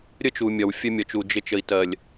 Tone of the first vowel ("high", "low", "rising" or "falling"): high